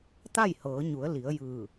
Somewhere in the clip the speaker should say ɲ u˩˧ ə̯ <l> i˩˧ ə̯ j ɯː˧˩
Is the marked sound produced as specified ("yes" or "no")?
yes